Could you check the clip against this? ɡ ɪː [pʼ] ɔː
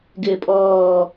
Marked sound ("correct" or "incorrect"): correct